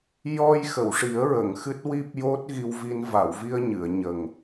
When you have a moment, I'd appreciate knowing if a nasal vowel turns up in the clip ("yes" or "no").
no